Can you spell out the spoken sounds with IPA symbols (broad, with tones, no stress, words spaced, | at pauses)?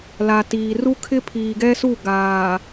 la˨tiː˨ ru˦kʰɪ˦ pʰiː˨ɡɛ˦su˦˨ ɡaː˨